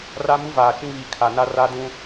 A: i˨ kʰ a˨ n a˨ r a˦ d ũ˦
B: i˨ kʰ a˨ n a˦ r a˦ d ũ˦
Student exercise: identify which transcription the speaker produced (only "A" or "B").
B